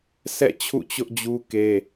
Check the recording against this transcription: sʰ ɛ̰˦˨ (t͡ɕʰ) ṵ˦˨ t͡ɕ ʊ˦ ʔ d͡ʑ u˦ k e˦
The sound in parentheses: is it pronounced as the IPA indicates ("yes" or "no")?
yes